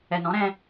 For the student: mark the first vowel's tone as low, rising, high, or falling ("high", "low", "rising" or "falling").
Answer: low